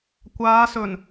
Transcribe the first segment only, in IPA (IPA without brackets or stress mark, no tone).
kʷ